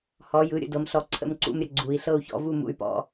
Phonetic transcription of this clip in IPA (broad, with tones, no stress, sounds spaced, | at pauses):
h ɔ˩˧ j ɯ˩˧ ɾʲ ə̰˩˧ d ɤ˩˧ m ɬ ɔ˧˩ ǀʰ ə̰˥˧ m ǀ ṵ˥˧ m ɾʲ ə˧ ɡ͡ǀ u˩˧ i̯ ɬ ɤ˥˧ u̯ ç ɔ̰˥˧ v u˥˧ m ṵ˧ y̯ p ɔ̰˥˧